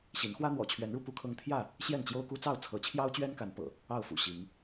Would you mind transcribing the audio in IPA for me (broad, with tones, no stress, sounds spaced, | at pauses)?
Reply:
ɕ i˨˦ n x w ä˦ n̪ w ɔ̰˨˩ t͡ɕʰ ɥ ɛ˨˦ n ɻ u˧ p u˦ kʰ ɤ˦ ŋ t̪ʰ j ä˥˨ | ɕ j ɛ˥˨ n t͡ɕ j o˦ ʊ̯ k u˦ t͡s ɑ˥˨ ʊ̯ t͡sʰ ɤ˨˦ t͡ɕʰ j ɑ˦ ʊ̯ t͡ɕ ɥ ɛ˦ n k a˨˦ n p ɤ̰˨˩ | ɑ˥˨ ʊ̯ f ṵ˨˩ ɕ i˨˦ ŋ